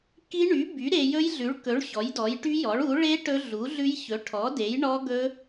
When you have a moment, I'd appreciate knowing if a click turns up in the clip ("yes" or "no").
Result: no